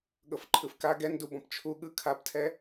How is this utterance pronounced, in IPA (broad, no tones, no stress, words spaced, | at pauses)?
ɠɤfǃʰɯfka ɡɛndubɔ̃p t͡ʃʰu ɠɯ kʰabtʰɛ